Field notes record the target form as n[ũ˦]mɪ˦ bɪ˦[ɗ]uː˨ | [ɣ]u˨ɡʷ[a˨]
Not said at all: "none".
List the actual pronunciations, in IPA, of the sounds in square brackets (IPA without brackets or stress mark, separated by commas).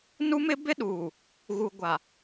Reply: u˦, ɗ, ɣ, a˨